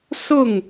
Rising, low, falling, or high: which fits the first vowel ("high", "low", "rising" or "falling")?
falling